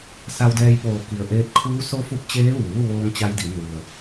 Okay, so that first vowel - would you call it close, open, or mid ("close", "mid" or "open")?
open